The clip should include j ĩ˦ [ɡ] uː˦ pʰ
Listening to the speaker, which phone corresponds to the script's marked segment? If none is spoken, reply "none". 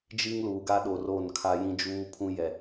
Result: d͡ʒ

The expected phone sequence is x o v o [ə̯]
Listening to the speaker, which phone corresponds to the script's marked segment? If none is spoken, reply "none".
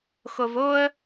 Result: ə̯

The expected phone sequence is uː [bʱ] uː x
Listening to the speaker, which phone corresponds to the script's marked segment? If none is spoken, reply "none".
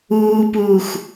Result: p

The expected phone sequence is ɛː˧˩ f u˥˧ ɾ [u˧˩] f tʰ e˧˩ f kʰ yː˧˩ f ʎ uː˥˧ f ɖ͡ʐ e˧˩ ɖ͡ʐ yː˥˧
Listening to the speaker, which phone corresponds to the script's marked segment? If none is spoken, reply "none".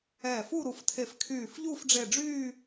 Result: u˧˩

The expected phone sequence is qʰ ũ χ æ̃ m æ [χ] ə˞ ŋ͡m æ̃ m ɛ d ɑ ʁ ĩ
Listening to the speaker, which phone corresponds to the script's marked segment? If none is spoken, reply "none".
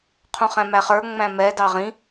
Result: χ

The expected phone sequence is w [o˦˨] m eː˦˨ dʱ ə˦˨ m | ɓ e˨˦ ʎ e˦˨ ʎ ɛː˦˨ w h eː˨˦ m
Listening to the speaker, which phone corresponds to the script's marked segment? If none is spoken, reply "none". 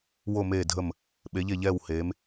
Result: o˦˨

